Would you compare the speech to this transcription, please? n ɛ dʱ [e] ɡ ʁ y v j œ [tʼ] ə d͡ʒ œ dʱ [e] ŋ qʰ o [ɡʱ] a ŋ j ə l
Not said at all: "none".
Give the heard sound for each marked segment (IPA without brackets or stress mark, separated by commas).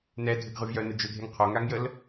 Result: ɘ, n, e, ŋ